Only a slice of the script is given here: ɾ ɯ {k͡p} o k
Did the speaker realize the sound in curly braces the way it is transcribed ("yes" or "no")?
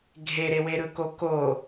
no